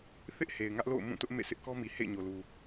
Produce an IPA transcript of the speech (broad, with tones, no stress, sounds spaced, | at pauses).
θ ɪ˦ ʔ h e˨ ɪ̯ ŋ ä˦ ʔ l o̰˦˨ ʊ̯ m ũ˦˨ t ʊ˦ ʔ m ḛ˦˨ sʰ ɪ˦ ʔ k ɔ˦ m i˨ h ḛ˦˨ ɪ̯ ɲ o˨ l u˨